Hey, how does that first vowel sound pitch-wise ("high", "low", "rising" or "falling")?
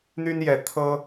high